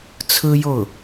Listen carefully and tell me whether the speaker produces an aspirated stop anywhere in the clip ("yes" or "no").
yes